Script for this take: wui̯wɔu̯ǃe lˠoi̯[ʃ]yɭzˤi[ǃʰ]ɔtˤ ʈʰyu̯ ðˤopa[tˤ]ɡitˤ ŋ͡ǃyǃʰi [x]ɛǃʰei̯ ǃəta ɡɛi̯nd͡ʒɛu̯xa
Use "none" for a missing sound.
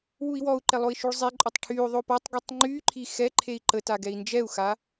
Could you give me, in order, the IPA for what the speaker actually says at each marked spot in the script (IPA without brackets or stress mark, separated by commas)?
ʃ, ǃʼ, tˤ, x